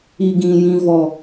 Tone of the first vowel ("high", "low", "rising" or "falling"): low